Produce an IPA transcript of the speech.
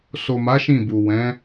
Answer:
s o˨ m a˨˦ ʃ ĩ˦˨ b u˨ w ɛ̃˨˦

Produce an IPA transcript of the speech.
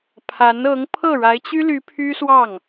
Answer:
pʰ a˧˥ n ɤ˧˥ ŋ pʰ ɤ˥˩ ɻ a˧˥ ɪ̯ t͡ɕ y˥ l y˧˥ pʰ y˥ s w ɑ˥˩ ŋ

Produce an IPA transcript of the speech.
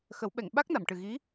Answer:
x ə˨˩˦ w ɓ ɛ˨˩˨ ŋ ɓ a˦˥ k̚ n a˨˩˨ m ʈ ɨ˨˩ ɣ i˧˥

